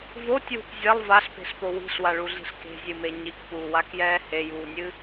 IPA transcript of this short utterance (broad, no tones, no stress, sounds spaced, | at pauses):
v o tʲ w ṳ p zʲ ɐ lˠ v a ɬ p e̤ ɬ p o w i̤ ɬ w a ɭ u ɮ i̤ ɬ k e̤ zʲ ɨ m e ɲ i k p uː w a k j ɛː h e j uː nʲ ɨ